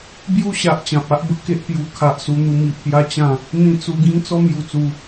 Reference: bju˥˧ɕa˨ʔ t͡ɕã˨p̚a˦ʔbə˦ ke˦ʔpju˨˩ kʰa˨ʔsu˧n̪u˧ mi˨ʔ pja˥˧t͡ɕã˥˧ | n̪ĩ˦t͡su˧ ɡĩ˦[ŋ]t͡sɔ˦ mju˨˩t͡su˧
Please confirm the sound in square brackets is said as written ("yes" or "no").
yes